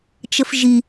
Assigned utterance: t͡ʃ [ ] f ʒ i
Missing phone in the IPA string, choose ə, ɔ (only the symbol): ə